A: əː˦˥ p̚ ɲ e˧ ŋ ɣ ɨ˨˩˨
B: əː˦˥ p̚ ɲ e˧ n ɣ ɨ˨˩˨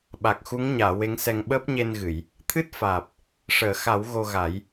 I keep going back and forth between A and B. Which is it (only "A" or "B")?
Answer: B